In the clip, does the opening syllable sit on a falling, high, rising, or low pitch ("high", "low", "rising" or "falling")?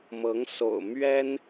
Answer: rising